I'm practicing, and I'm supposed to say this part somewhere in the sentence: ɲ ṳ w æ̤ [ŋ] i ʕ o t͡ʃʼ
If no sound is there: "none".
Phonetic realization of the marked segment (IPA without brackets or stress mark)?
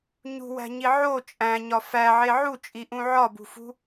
ɲ